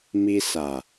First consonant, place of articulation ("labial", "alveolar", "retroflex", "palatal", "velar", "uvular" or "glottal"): labial